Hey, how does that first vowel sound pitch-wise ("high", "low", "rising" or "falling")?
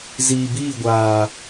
low